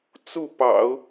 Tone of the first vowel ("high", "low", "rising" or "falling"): falling